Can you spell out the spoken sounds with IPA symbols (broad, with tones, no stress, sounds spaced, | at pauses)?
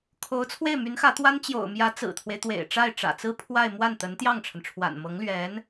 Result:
kʰ o˧˥ ʊ̯ t͡sʰ w e˥˩ ɪ̯ m y˧˥ n x ä˧˥ t̪ w a˥ n t͡ɕ j o̰˨˩ ʊ̯ m j ä˧˥ t͡s ɹ̩˨˩ t̪ʰ w e˦ ɪ̯ t̪ w ḛ˨˩ ɪ̯ ʈ͡ʂ a˥˩ ɪ̯ ʈ͡ʂ ä̰˨˩ t͡s ɹ̩˥ pʰ w a˥˧ ɪ̯ m w a˥˩ n t̪ ə˧˥ n t̪ j ɑ˥˩ ŋ ʈ͡ʂʰ ə˩ n ʈ͡ʂʰ w a̰˨˩ n m ɤ˧˥ ŋ l ɥ ɛ˧˥ n